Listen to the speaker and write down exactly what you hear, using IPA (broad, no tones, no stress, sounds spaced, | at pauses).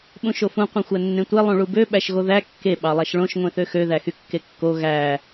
ɓ ũ ʃ o f ũ qʷ ẽ xʷ æ nː ẽ tʷ e lˠ ũ ɭ u b ø ɓ æ ʃ ɣ o ð æ kː e ɓ ɑ lˠ æ ʃ ɭ õ ʃ ŋʷ ẽ θ ø x ø ð æ x y kː e kː o ɣ æ